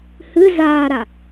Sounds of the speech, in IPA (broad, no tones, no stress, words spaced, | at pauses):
hɨ zaːɾa